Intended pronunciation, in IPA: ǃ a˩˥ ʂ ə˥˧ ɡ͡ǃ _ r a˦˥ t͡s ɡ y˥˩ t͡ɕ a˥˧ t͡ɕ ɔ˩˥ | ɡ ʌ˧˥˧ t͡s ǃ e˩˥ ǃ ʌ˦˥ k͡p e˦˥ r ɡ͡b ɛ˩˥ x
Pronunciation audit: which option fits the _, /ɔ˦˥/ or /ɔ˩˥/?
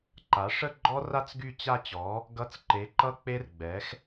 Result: ɔ˦˥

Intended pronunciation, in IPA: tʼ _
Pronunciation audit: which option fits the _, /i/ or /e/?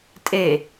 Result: e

